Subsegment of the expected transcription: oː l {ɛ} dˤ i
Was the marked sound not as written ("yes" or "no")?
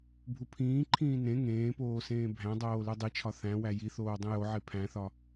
yes